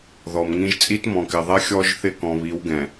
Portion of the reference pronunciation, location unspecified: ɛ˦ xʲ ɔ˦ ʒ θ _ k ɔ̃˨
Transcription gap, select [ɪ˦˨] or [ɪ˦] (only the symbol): ɪ˦˨